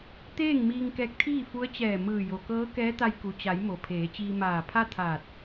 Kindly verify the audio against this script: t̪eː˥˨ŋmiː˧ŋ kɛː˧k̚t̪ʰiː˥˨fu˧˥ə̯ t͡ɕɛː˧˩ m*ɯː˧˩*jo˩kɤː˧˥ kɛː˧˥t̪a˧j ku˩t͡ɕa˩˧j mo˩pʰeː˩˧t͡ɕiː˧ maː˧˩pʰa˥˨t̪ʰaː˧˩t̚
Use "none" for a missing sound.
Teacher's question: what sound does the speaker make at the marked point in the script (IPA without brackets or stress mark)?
ɯː˧˩